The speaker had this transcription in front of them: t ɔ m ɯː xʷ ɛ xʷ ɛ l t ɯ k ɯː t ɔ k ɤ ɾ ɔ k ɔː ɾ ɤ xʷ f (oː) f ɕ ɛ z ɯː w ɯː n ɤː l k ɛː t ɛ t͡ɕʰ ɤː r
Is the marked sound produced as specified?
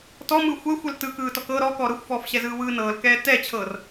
no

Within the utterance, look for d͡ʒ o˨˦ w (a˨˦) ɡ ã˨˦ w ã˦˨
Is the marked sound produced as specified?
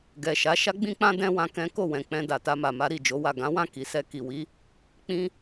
no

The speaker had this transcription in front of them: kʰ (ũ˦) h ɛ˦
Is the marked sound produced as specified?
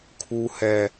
no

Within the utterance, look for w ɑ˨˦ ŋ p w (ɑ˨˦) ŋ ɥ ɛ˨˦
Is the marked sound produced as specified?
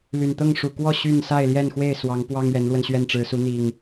no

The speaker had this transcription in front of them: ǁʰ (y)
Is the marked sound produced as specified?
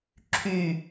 yes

